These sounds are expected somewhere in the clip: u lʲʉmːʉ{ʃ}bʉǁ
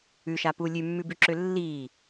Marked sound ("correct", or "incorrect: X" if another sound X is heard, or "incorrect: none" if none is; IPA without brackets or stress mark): incorrect: none